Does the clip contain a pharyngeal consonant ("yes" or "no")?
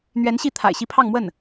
no